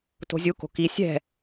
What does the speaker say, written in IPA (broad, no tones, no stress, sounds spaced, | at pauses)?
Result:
t o̤ zʲ u k o̤ k i sʲ ɛ̤